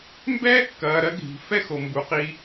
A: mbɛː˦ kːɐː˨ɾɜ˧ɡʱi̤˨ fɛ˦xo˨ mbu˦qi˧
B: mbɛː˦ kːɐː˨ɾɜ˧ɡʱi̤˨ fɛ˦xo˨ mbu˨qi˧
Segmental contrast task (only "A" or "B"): B